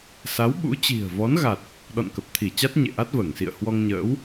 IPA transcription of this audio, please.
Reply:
s a˨˦ w ɓ ṵ˧˥ t͡ɕ i̤˨˩ ə̯ v ɔ˨˦ n ɣ a˨˩ t̚ | ɗ ɔ̰˧˨ n k ə˨˩ p̚ t̪ʰ i˧˩ t͡ɕ a˦˥ t̚ ɲ ḛ˧˨ ʔ a˦˥ t̚ v əː˧˩ ŋ s ḭ˧˨ ə̯ h w ɔ˧ ŋ ɲ ə̰ː˧˥ w

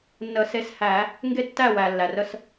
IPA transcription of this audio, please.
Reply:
nː ə˨˩˦ s e˨˦ s h æ˨˩˦ | ŋ ɡ e˦˨ tː æ˦˨ w æ˩ lː æ˩ r ə˦˨ s

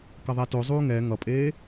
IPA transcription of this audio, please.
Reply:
k ʌ ðˤ ɛ t o zˤ uː ŋ ɛ ŋ ʌ pʼ eː

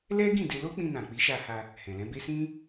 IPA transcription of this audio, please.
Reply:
l ɛ˦ ɡ ĩ˦˨ d e˧ l o˦ k͡p ĩ˧ n ã˨ k͡p i˨˦ ʃ a˧ h a˧ | h ɛ̃˨ l ɛ̃˨˦ b e˦ s ĩ˦

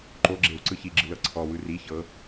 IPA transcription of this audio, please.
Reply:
ǃ o ɡ͡ǁ e w ǀ ɯ ç i ɡ͡ǁ ɯ l ɤ ǀʰ ɔ w ɯ r i ç ɤ

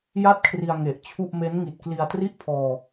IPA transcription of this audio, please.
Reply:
j a˥˩ t̚ kʰ r i˧ a̯ ŋ e˨˩ ʔ t͡ɕʰ u˥˩ ʔ m e˦˥ n ŋ i˨˩ t̚ k l i˧ a̯ t r i˥˩ ʔ pʰ ɔː˧

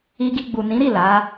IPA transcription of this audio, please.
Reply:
i˧ ɡ i˧ ɡ͡b u˨ n ĩ˨˦ ɾ i˦˨ l a˨˦

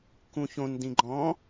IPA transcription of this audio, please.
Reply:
k ũ ç õ n d ĩ ɡ͡ǃ ɔ̃

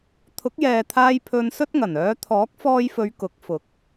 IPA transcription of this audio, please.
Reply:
t̪ʰ ʊ˨˥ k̚ j ɛː˨ t̪ʰ aː˧ j pʰ ɵ˧ n s ɵ˥ t̚ ŋ ɐ˨˩ n œː˨˧ t̪ʰ ɔː˨˥ k̚ f ɔː˧ j f ɵ˨˧ ɥ k ʊ˨˥ k̚ f ʊ˨˥ k̚

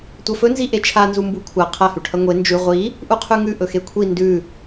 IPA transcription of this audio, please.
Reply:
tʷ ɐ f ɵ n z i ʔ e t͡ʃʰ a n z u m b u kʷʰ a qʰ ɐ h ʉ ʈʰ ɐ ŋʷ e n d͡ʒ ʉ ʁʷ i | ʔ u qʰ ʉ ŋ ʉ ʔ ɵ x e kʷʰ i n d ʉ

